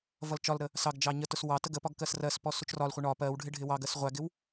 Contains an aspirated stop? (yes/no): no